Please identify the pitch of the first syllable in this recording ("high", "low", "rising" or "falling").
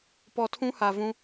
low